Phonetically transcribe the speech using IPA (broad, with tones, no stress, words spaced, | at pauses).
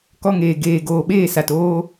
kɔ˧ŋeː˨ ɡeː˨ ɡoː˨ɓeː˦˨sa˨t oː˦